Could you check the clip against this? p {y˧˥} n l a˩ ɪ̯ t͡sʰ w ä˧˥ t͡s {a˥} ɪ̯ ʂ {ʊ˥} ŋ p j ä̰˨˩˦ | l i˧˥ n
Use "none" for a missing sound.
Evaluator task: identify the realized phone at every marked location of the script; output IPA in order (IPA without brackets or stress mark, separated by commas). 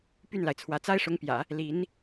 y˥˩, a˥, ʊ˧˥